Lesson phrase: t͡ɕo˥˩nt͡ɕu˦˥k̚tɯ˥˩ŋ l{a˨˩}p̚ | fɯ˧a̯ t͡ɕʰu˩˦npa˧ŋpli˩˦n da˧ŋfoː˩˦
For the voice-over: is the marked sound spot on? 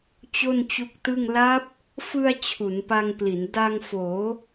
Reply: no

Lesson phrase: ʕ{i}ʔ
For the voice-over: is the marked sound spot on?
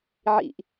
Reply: no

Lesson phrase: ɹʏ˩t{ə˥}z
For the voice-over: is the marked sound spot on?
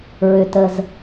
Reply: no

